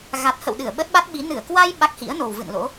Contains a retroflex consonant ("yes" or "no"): no